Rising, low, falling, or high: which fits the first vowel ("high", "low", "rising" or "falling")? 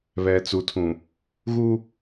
low